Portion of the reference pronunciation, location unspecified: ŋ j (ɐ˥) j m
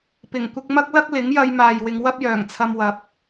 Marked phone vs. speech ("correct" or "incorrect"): incorrect